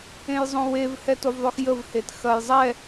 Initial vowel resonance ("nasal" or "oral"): nasal